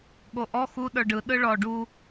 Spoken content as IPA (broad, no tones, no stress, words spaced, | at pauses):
ɠoʔɔ xu ɗə˞ɖɯ ɗɯɭɔ ɖu